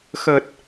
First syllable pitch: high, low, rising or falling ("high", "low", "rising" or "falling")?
low